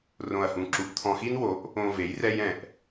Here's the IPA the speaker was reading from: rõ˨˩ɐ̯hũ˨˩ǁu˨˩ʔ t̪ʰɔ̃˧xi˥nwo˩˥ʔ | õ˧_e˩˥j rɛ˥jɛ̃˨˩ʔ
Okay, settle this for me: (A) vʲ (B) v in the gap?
B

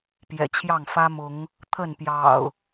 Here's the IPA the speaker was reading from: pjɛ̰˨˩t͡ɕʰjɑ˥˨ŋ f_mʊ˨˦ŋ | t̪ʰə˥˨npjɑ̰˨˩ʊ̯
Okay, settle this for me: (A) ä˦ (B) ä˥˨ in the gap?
A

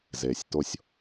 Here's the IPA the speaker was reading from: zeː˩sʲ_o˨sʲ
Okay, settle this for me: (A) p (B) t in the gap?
B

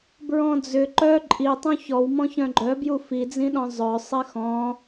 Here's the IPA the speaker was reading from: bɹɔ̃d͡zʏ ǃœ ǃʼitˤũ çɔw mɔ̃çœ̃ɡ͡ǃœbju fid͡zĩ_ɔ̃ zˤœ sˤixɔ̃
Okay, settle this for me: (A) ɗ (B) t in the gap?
A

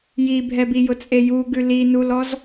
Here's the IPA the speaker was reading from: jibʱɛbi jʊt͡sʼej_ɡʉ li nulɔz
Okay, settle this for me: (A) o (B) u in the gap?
B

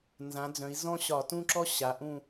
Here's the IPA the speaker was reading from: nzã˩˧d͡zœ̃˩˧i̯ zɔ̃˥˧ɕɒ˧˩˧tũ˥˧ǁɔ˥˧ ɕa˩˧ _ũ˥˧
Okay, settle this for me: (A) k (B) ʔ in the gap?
B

